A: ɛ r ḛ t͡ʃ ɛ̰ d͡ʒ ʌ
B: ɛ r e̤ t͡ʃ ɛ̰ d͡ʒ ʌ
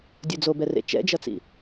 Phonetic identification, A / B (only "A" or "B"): A